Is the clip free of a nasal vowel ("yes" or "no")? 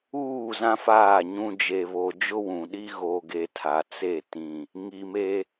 no